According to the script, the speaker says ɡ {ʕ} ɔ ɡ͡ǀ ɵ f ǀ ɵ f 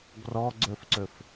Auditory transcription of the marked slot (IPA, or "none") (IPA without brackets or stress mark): r